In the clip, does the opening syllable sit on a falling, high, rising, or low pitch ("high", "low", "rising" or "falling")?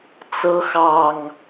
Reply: rising